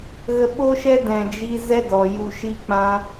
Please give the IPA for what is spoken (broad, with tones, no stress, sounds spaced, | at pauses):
ɣ ə˧ ɓ o˦ ʃ ɛ˦ d ɛ̃˧ d͡ʒ i˦ z ɛ˦ d ɔ˨ j u˧ ʃ i˦ k͡p ã˦